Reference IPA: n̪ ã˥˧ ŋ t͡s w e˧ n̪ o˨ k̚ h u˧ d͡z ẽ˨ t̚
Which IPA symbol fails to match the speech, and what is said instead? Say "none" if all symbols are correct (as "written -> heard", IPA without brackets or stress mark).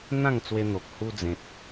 none